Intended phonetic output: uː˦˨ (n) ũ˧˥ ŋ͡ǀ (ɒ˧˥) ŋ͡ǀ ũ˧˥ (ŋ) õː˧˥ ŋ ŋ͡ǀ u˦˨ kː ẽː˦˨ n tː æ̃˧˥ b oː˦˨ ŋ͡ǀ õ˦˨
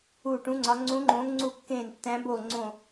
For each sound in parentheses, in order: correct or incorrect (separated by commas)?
incorrect, correct, incorrect